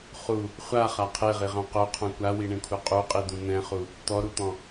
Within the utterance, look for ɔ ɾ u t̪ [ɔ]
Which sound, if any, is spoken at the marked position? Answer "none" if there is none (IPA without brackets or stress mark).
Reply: ɔ̃